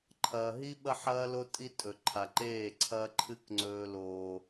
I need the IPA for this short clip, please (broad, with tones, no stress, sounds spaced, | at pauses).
ǃʰ ɐː˨ ɦ i˦ ɓ ɐ˦ ħ ɐː˦ l o˦ tʼ i˦ tʼ ɵ˨ ǃʰ a˨ ǃ eː˦˨ ǀʰ ɐ˦ ǃʰ ɨ˦ k ŋ͡ǀ ɵː˦ l oː˦